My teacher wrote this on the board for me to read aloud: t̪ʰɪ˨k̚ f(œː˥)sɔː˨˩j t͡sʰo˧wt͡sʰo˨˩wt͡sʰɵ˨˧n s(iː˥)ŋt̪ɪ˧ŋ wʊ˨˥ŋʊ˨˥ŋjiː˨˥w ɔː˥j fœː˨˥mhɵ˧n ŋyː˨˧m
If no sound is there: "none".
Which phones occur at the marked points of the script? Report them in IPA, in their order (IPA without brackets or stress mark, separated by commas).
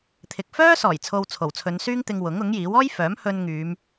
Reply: œː˥, yː˥